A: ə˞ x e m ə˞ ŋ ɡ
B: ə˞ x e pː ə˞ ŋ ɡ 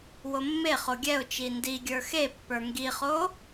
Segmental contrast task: B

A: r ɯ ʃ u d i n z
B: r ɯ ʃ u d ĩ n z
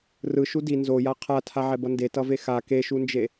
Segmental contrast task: A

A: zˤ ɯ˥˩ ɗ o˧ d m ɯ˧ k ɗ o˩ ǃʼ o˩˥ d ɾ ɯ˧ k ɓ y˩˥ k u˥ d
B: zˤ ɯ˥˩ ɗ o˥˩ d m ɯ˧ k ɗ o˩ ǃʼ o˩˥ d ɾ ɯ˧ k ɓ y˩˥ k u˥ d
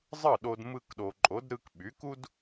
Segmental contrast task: A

